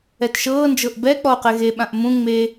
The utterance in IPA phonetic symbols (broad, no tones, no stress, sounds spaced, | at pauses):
ɛ t ʃ ɤː n d͡ʒ ɤ ʔ b ɛ k͡p ɔ o̯ q ɛ ɣ e ɓ ã ʔ m ũ ŋ͡m e